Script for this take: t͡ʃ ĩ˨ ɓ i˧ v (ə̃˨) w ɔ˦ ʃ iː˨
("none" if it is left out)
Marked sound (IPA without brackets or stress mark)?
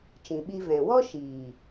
ɛ̃˨